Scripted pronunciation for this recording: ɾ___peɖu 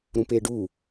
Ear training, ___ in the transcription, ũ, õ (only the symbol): ũ